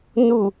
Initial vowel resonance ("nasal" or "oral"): oral